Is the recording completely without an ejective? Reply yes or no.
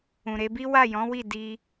yes